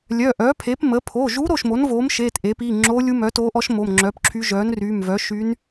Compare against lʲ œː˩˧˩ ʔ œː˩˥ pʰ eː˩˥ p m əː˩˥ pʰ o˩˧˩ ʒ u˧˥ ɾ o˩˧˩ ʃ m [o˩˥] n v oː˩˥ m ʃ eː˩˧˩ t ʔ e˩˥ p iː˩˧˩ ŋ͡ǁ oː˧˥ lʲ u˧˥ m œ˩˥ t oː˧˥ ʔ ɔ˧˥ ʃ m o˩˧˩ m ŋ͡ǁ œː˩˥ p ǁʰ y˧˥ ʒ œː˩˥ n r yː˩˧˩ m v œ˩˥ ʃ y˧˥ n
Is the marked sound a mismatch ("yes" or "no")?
no